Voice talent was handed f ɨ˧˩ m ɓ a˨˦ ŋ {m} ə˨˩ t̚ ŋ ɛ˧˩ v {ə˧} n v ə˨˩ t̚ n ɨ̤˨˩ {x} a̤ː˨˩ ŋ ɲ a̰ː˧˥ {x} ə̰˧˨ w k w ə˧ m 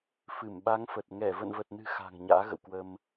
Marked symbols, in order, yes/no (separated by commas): no, no, yes, no